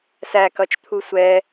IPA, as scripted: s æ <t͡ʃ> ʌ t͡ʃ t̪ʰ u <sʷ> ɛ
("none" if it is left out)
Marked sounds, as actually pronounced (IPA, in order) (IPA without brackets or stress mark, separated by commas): k, sʷ